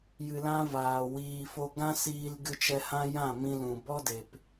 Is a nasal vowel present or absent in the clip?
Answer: present